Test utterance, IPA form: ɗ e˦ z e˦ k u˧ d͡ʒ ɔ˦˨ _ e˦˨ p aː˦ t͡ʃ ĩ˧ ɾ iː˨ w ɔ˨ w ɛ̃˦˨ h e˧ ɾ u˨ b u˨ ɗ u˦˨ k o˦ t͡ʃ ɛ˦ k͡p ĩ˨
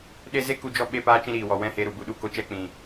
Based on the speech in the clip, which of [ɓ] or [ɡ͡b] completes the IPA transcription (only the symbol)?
ɓ